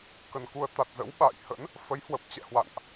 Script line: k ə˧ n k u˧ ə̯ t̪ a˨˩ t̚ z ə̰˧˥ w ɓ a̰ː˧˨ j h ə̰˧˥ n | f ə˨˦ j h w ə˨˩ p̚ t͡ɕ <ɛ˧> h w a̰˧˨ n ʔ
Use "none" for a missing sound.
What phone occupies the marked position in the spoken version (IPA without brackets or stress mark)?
ɛ̰˧˨